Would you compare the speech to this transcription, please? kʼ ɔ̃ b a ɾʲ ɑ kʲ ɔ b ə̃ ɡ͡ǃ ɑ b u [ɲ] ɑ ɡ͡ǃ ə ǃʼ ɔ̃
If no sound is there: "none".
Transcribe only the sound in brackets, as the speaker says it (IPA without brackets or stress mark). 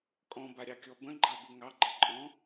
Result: ŋ